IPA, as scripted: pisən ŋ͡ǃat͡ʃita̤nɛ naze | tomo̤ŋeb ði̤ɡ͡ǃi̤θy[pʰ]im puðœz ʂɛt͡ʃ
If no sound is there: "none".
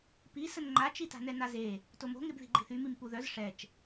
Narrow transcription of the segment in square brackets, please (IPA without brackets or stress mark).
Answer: m